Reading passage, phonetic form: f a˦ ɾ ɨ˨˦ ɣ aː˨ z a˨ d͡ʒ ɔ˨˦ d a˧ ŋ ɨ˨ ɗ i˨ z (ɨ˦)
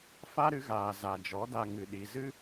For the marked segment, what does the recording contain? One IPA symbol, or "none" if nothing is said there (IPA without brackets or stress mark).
ɨ˦